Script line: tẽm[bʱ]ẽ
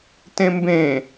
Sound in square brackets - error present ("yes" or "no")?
yes